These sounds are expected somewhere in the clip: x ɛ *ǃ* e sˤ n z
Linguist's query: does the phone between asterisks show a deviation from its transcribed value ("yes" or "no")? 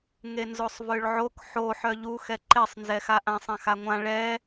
no